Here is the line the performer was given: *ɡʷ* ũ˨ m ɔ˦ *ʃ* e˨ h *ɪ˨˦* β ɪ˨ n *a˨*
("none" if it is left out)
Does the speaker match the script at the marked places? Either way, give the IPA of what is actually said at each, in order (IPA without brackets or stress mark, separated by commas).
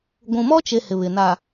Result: ɡʷ, t͡ʃ, ɪ˨, a˨